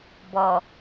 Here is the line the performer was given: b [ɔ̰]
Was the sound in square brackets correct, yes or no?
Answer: no